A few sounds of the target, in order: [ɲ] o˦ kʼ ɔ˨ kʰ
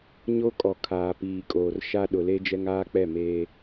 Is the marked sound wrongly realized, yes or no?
no